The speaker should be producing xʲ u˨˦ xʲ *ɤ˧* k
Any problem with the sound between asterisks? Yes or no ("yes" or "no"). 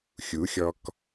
yes